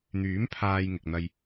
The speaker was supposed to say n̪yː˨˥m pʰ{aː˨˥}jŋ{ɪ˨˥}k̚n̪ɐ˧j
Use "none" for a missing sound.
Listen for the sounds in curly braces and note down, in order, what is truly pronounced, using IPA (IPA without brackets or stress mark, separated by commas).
aː˧, ɪ˨